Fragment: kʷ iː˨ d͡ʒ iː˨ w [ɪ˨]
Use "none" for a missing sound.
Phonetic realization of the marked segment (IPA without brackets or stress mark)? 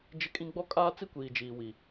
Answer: i˨